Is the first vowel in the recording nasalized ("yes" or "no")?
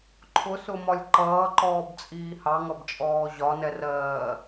no